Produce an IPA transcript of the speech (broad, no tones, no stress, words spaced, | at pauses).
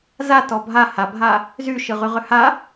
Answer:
zatɔ bʱa habʱa | zy ʃɯʁyʁʏha